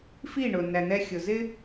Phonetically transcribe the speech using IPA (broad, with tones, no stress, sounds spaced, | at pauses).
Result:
f i˦˨ ɳ ʊ˨ n æ˨ n̪ ɛ˧ xʲ ʊ˨ z ɪ˦